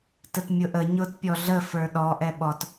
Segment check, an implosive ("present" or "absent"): present